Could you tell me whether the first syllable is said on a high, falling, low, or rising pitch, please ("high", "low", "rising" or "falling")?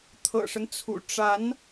low